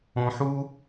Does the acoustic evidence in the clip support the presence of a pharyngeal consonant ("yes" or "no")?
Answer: yes